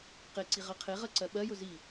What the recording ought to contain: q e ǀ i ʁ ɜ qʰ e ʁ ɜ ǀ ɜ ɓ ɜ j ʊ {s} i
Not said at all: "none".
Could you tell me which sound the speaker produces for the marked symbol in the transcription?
z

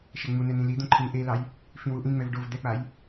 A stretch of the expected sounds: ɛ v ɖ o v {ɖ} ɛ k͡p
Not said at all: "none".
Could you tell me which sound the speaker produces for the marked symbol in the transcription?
d̪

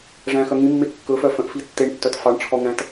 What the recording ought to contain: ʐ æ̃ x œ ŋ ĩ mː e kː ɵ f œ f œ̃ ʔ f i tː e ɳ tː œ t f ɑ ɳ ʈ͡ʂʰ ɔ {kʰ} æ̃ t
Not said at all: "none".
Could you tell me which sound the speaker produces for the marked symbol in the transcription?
ŋ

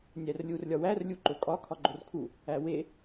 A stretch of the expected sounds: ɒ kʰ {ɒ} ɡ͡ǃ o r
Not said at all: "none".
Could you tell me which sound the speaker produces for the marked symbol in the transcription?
ɒ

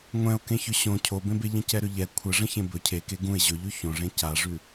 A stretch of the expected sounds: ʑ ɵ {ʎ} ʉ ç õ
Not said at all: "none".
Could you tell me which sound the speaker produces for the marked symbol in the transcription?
ʎ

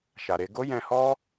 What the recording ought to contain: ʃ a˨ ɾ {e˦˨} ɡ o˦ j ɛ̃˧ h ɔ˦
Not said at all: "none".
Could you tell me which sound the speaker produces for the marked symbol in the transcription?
e˧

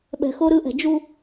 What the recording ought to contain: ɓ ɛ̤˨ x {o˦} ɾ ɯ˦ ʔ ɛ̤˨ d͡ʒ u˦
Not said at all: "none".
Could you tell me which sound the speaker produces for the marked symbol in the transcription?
o˦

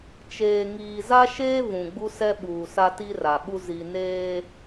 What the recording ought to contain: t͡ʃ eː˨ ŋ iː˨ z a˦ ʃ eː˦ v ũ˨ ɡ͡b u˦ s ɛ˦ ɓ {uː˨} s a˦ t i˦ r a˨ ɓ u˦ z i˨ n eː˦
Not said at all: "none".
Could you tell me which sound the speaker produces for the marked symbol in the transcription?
uː˨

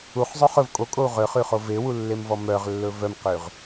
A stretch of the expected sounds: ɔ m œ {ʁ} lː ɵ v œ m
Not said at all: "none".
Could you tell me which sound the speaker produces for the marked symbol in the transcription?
ʁ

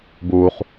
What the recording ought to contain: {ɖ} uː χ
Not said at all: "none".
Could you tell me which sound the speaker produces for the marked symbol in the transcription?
b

